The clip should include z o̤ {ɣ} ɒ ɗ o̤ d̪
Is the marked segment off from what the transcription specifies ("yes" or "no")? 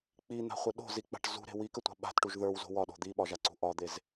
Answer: yes